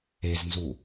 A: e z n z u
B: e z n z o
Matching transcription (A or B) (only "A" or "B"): A